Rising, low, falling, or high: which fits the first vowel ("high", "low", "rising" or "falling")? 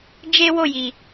high